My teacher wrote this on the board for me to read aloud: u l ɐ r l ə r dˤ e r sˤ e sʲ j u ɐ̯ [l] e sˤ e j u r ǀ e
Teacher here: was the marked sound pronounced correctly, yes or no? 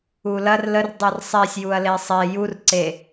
yes